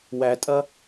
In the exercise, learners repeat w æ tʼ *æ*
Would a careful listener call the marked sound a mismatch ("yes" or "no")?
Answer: yes